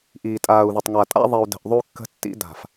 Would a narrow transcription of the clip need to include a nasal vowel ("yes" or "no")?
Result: no